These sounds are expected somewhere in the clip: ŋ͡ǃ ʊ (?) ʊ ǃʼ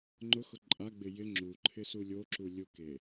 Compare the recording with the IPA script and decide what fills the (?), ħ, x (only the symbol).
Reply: x